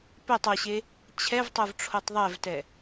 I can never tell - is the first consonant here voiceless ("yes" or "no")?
yes